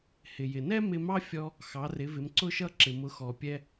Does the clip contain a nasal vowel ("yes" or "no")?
no